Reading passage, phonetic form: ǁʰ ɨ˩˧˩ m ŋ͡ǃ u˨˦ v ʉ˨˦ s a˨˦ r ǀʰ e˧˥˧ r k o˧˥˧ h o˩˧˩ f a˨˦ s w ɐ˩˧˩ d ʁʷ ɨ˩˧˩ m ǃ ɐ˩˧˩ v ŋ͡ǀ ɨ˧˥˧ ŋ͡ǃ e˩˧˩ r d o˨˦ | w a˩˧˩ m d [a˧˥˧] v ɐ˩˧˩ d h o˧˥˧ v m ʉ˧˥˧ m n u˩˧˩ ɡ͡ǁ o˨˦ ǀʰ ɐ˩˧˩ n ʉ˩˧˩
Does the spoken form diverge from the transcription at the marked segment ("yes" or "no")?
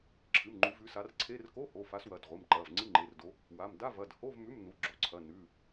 no